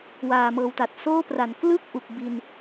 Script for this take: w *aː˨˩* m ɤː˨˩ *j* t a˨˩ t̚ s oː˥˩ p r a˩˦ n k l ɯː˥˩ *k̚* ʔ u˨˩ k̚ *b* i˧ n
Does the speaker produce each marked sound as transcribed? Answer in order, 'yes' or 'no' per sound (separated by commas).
yes, no, yes, yes